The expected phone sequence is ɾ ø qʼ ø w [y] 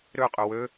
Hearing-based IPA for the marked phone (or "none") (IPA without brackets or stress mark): ø